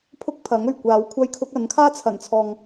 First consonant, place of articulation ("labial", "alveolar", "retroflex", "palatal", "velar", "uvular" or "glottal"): labial